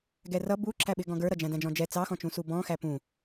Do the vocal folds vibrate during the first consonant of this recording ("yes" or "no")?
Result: yes